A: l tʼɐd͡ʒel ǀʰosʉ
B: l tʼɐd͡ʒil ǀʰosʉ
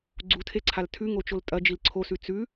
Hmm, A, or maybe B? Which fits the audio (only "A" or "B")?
B